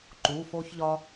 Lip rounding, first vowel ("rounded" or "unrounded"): rounded